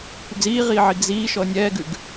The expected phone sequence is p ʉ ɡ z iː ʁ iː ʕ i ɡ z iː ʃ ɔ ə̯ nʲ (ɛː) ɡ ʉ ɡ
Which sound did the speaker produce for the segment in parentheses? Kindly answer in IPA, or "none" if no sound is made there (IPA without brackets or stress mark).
ɛː